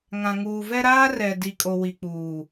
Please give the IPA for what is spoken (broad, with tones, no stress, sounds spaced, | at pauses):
ŋ ã˨ ŋ uː˨ v ɛ˦ ɾ aː˦ r ɛ˨ d i˨ kʼ o˨ w i˨ k͡p uː˨